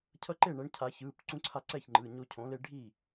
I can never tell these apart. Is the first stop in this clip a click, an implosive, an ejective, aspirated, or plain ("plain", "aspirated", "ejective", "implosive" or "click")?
aspirated